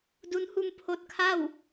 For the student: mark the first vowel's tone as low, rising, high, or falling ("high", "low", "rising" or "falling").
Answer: rising